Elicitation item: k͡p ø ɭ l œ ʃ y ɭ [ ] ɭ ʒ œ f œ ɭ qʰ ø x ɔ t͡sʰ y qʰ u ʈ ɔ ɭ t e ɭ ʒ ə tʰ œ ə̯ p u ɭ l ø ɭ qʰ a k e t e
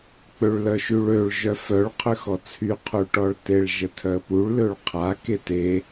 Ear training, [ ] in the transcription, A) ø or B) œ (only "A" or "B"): A